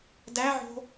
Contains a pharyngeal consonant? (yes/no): yes